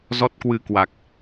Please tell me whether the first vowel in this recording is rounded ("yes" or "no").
yes